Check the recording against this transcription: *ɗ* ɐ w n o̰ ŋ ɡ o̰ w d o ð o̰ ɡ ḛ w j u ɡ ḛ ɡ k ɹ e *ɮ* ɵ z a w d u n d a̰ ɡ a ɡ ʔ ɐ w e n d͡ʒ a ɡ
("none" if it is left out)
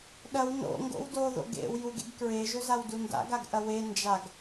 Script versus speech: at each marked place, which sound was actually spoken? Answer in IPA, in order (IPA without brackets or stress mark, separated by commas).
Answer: ɗ, ʒ